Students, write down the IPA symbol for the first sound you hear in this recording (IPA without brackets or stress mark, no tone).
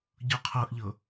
ɟ